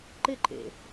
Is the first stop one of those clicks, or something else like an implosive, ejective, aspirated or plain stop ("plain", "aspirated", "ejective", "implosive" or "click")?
click